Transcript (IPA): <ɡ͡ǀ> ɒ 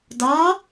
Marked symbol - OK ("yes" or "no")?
no